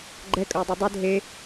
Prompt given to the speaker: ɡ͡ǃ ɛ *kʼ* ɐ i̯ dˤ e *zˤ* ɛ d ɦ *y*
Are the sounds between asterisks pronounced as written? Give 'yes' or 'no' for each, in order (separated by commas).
yes, no, no